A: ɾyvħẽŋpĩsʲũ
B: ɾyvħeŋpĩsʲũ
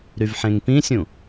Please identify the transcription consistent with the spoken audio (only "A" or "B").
A